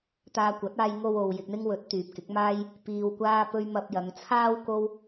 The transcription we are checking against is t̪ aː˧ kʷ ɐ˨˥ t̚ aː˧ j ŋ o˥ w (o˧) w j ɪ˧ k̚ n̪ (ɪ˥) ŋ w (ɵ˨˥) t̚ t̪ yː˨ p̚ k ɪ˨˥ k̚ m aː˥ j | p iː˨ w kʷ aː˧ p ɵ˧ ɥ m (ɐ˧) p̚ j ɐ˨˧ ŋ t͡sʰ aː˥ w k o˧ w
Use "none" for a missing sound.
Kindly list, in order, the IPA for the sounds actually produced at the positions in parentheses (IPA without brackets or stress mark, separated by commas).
o˧, ɪ˥, ɵ˨˥, ɐ˧